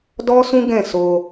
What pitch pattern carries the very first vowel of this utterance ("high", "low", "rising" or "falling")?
high